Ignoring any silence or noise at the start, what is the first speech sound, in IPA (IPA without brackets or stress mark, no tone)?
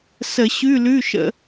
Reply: s